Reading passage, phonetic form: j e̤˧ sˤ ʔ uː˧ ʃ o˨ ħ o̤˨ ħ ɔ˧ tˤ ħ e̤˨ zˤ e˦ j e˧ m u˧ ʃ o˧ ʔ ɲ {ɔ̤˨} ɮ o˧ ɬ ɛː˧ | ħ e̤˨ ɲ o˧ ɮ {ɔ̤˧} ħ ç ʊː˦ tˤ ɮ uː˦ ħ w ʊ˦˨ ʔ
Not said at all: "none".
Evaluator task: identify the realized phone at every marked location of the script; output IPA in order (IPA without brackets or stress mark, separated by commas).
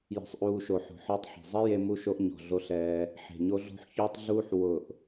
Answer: ɔ̤˨, o̤˧